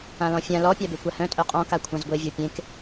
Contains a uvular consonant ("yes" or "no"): yes